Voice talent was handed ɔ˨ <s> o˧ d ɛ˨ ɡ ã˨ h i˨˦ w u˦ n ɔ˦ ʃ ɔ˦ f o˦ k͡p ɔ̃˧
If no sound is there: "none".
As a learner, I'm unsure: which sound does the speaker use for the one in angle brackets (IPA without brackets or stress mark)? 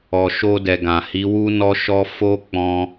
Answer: ʃ